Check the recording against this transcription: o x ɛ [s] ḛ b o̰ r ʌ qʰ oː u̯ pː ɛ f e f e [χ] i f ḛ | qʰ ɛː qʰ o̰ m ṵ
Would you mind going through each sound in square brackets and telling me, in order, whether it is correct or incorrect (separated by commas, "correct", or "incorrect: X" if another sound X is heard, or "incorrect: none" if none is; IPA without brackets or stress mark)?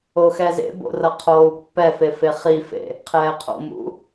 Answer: incorrect: z, correct